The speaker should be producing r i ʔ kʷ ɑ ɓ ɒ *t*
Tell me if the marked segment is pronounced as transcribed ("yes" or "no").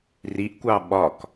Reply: no